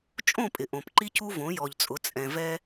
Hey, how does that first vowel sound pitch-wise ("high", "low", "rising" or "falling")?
falling